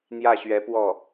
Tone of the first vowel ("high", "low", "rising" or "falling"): falling